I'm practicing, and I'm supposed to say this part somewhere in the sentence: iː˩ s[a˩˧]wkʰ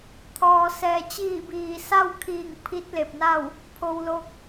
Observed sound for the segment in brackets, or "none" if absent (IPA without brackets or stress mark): a˥˨